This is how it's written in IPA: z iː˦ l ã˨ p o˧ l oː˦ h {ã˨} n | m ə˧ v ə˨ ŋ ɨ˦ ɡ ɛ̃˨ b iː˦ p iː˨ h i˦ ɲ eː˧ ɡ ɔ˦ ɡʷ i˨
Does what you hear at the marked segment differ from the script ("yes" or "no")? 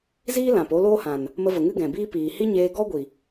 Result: no